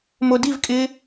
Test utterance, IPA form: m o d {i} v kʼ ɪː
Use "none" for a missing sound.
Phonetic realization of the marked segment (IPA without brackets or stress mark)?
i